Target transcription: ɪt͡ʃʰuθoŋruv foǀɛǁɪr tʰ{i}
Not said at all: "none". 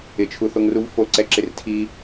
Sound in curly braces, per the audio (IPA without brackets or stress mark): i